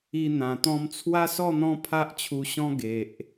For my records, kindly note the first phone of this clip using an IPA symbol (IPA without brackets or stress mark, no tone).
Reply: i